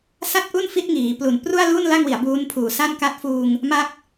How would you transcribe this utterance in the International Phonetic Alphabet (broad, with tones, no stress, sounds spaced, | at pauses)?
s a˥˩ t̚ ʔ u˥˩ n f i˦˥ t̚ ŋ iː˩˦ p l u˨˩ n p r u˥˩ a̯ l u˥˩ n l a˥˩ ŋ w i˩˦ a̯ b uː˦˥ n pʰ uː˨˩ s a˥˩ n k a˥˩ t̚ f uː˧ ŋ | m a˦˥ k̚